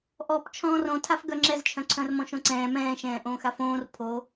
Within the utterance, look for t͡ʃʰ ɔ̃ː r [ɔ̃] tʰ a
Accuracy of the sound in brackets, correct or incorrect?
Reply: incorrect